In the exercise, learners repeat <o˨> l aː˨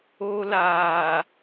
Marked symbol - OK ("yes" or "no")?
no